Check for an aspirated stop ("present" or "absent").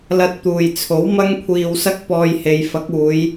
present